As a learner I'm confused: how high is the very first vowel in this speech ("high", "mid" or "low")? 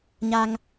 low